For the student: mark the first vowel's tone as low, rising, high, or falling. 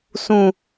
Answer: low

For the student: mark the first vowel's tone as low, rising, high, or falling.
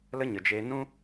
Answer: high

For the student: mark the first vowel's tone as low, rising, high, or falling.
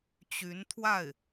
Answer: rising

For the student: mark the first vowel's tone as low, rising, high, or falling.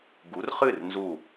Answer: rising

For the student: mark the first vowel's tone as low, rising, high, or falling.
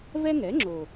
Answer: high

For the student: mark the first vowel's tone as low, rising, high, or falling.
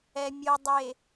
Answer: low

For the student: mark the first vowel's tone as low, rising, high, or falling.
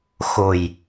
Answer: low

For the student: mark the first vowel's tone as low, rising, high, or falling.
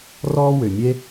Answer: high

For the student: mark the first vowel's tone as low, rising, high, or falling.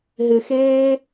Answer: low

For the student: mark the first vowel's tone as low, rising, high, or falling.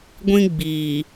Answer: high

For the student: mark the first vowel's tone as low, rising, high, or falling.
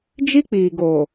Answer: high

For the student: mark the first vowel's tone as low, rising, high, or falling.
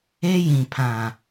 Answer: high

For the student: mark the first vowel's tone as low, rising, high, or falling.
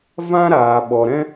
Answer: high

